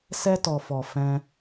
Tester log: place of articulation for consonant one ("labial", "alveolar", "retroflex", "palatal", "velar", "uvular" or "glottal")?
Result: alveolar